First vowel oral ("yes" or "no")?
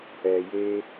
yes